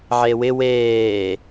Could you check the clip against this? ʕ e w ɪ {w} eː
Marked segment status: correct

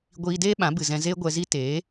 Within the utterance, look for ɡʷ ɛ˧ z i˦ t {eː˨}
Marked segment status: incorrect: eː˨˦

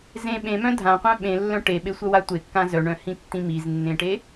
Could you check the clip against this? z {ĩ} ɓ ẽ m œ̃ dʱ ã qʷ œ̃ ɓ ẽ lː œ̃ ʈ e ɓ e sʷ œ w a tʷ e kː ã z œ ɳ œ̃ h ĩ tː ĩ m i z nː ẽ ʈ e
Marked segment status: incorrect: ẽ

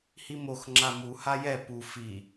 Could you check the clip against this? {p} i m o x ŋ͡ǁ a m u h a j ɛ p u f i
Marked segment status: incorrect: h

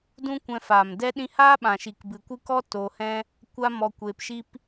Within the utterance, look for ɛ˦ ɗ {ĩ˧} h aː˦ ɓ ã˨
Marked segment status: correct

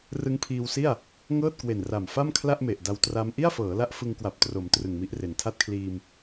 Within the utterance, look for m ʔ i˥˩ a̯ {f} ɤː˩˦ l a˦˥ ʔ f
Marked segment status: correct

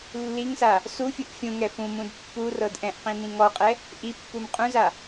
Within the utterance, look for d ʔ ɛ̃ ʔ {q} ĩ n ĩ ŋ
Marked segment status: correct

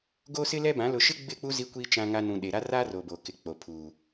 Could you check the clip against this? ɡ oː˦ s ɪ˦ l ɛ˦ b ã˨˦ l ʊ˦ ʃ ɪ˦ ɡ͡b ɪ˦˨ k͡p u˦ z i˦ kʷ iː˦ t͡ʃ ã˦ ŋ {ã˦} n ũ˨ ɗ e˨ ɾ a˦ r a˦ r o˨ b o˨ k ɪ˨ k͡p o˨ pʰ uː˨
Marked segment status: incorrect: a˦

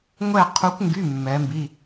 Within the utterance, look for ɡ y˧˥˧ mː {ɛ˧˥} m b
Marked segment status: correct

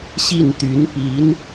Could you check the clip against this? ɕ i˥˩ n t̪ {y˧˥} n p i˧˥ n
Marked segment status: correct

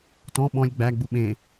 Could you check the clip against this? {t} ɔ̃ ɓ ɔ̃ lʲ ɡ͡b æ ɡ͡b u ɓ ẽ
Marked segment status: correct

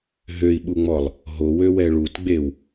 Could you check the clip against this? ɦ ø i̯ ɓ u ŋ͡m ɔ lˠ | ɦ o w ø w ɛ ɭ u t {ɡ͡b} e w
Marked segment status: correct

